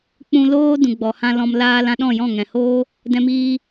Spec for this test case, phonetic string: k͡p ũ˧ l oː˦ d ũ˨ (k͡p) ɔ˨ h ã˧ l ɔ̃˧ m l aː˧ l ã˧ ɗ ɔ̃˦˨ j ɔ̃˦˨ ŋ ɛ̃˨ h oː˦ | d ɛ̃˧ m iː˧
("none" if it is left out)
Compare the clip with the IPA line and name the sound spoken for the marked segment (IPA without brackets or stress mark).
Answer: ɡ͡b